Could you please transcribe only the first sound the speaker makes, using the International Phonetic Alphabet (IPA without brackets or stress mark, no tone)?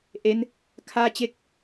ʔ